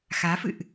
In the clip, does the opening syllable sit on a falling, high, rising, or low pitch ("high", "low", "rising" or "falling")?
rising